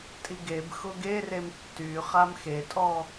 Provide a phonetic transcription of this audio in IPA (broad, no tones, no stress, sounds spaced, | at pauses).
tʼ i ɡ e b x ʊ ɡ e r e m tː y χ a m x e tʼ ɔ